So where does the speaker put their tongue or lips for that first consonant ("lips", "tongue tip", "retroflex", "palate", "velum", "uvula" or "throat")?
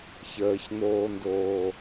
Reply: palate